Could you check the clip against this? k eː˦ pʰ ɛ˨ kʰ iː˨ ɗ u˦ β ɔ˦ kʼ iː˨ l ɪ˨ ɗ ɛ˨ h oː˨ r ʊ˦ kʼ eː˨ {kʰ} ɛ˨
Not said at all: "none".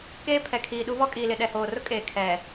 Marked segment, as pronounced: kʰ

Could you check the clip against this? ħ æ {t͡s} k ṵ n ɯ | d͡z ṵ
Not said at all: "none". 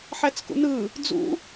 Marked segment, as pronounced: t͡s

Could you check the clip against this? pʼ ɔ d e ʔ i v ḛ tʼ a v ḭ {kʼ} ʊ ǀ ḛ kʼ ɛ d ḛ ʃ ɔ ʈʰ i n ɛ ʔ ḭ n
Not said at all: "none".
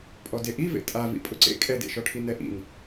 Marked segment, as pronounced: pʼ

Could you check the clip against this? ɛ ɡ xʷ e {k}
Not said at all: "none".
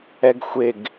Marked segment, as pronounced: ɡ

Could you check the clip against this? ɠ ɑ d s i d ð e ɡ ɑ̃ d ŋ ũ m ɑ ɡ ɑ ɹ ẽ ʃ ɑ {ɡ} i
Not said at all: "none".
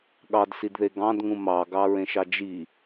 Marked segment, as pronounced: d͡ʒ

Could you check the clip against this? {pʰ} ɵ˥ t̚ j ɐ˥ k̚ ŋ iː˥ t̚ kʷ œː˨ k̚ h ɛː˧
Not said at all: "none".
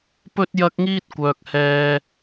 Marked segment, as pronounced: p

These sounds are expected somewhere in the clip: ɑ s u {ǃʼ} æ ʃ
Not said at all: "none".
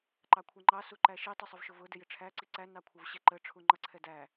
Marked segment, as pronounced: ǃ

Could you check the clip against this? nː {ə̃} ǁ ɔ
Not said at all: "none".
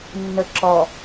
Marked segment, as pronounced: ə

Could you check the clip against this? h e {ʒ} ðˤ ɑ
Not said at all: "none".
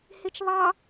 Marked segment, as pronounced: t͡ʃ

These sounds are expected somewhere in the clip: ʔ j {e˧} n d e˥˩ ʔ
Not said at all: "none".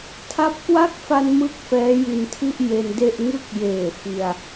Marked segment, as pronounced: e˧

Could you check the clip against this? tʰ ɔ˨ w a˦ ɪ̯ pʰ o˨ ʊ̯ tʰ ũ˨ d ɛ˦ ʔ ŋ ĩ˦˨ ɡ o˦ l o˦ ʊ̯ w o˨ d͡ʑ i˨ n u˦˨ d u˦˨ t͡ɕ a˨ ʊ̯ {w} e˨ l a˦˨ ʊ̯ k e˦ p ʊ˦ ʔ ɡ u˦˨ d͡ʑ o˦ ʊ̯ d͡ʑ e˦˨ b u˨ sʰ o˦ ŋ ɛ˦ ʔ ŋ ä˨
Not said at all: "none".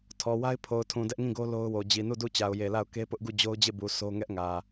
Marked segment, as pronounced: j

